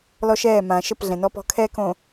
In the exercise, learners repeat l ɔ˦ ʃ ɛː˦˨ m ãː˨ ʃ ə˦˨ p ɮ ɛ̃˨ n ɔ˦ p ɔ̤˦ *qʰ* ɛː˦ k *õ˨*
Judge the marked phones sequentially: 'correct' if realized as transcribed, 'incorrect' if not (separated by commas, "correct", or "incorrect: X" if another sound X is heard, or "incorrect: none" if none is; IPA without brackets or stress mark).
incorrect: kʰ, correct